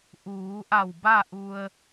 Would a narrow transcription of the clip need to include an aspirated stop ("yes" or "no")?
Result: no